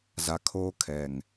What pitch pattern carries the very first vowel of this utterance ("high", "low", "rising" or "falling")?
low